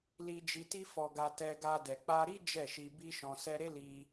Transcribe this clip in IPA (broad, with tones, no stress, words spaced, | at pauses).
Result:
li˧d͡ʒi˧ ti˦fɔ˧ɡa˧ tɛ˧ɡa˧ dɛ˨k͡pa˧ɾi˦ d͡ʒɛ˦˨ʃi˧bi˦ʃɔ̃˧ sɛ˧ɾe˦li˧